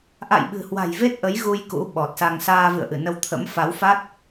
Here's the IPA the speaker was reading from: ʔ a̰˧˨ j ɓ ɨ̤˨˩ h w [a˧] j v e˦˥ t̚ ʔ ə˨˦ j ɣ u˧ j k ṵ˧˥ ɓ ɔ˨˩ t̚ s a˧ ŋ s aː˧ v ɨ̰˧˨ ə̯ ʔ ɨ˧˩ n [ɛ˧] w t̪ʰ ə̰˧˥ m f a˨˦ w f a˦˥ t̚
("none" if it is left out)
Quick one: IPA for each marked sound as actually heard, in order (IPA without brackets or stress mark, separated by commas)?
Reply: a̤˨˩, ə˧